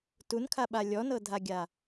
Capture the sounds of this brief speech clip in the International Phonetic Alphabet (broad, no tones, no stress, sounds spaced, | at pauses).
t u n kʰ a ɓ a lʲ ɔ n ɤ dʱ a ɡʲ a